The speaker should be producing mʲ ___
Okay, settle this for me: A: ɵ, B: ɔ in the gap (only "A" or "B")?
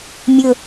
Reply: A